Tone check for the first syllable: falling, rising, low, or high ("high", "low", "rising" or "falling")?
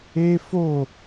high